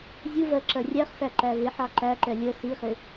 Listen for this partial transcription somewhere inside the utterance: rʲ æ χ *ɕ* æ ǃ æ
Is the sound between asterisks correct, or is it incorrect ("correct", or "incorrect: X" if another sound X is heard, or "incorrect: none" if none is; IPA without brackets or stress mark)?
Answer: incorrect: s